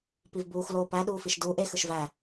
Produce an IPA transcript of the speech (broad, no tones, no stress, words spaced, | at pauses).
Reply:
pivbuːx loːpæ ɗuːfiʃduːʔ ex ɯʃvæ